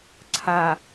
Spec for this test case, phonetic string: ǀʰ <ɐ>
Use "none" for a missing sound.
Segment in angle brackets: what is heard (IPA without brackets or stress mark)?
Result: a